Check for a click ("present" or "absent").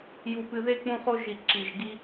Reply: present